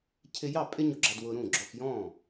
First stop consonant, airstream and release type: aspirated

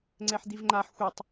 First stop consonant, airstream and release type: click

